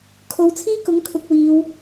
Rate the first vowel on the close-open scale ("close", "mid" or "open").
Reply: mid